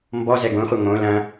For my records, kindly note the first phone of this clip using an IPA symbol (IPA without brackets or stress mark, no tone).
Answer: m